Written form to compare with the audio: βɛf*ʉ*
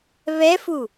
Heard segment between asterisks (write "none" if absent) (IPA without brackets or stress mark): u